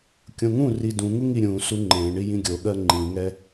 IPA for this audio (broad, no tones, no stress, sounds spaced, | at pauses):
kʲ õ ŋ ũ r i d ũ ŋ u ŋ i ɾʲ ũ s u ŋ͡ǃ ẽ ɳ i j ĩ ɡʲ o ɠ ɜ ŋ͡ǃ ĩ ŋ ɛ